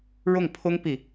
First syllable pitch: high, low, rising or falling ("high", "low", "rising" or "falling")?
falling